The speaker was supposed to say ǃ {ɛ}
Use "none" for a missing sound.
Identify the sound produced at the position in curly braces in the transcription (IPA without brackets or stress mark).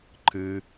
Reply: ɨ